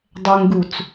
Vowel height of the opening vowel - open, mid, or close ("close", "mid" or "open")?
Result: mid